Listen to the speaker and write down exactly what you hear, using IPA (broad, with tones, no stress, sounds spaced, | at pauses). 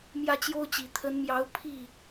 m j ä˥˩ t͡ɕ j o˥ ʊ̯ t͡ɕ i˨˩ t̪ʰ ə˧˥ n m j ɑ˧˥ ʊ̯ pʰ i˥˩